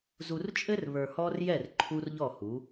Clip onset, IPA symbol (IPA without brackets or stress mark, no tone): z